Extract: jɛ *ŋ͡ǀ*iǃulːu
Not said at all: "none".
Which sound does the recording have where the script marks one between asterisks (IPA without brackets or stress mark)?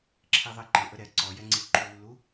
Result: ŋ͡ǀ